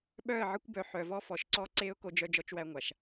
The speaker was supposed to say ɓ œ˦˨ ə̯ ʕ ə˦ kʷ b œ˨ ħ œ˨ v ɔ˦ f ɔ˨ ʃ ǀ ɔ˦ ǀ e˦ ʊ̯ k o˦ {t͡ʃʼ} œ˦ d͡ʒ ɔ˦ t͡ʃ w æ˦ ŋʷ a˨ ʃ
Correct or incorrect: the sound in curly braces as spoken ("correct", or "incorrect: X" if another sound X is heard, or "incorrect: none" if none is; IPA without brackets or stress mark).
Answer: incorrect: d͡ʒ